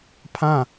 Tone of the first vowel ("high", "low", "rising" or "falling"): falling